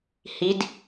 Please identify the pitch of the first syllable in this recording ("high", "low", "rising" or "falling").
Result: rising